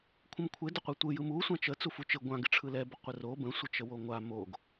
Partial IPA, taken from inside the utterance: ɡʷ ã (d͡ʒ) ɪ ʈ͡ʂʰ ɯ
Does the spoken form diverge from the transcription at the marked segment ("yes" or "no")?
yes